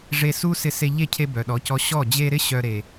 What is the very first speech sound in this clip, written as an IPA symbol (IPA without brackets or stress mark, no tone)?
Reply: ʐ